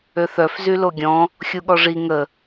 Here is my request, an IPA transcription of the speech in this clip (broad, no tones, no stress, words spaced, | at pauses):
øθœf zyloɡʲɔ̃ | xʲuɠɔʐi ŋə